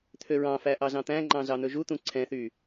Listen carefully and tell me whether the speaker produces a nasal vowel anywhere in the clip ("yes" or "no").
yes